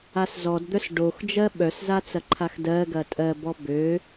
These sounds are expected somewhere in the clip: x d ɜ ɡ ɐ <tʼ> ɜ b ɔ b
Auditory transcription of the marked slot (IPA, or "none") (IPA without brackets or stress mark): tʼ